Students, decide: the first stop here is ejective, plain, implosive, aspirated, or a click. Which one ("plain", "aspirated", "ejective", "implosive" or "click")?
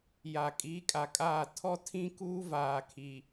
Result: ejective